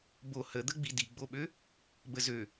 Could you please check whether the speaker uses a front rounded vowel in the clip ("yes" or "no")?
yes